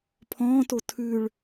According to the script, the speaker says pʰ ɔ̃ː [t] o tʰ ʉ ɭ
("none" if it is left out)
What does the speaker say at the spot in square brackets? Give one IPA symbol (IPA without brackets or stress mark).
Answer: t